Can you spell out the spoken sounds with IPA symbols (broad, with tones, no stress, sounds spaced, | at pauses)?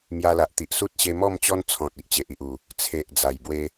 m j a˧ l a˨ ʔ t̪ i˨ ʔ s u˦ t̚ ɕ e˧ m ɔ˥˧ m t͡ɕ ɔ˦ n t͡sʰ ɔ̃˨ t̚ i˨ ʔ t͡ɕ e˨ ʔ i˨ ʔ u˨˩ | t͡sʰ e˨ ʔ d͡z a˨˩ j b w e˦